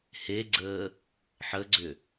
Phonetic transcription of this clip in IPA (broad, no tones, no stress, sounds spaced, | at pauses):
h e ɡ͡ǀ əː | ħ ə ɡ͡ǀ ʏ